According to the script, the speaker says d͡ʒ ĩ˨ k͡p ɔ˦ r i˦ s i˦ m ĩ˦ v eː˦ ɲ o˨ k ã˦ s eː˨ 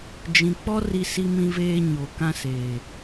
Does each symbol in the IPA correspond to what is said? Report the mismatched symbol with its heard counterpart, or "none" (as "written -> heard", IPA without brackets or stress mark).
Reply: none